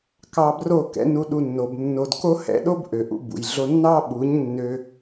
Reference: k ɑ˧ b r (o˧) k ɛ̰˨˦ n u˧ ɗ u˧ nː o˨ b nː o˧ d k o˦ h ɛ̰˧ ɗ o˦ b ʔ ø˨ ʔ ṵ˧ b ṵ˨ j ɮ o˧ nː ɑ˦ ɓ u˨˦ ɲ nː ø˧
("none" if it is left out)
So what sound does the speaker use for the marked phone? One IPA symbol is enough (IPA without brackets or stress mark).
o˦˨